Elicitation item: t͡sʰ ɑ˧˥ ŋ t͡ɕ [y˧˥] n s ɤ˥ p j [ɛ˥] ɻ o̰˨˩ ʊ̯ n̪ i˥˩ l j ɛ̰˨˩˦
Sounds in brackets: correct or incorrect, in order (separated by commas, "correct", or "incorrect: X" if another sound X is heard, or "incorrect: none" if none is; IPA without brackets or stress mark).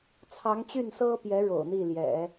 incorrect: y˥˩, incorrect: ɛ˧˥